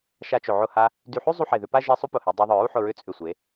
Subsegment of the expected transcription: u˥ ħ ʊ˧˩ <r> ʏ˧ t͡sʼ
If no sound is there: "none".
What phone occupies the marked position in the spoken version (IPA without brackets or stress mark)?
ɹ